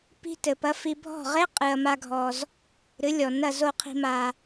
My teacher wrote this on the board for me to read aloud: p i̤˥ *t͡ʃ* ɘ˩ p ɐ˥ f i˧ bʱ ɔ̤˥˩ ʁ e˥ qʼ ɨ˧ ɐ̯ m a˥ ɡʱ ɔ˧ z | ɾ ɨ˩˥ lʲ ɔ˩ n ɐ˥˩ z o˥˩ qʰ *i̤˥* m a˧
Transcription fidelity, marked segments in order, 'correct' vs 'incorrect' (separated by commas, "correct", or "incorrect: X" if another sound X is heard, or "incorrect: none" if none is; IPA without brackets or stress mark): incorrect: t, incorrect: i̤˧